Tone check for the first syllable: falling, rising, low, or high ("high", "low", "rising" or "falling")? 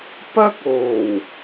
high